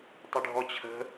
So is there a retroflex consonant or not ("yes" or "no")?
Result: yes